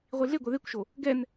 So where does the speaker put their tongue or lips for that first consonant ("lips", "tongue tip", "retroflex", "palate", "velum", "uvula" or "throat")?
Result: uvula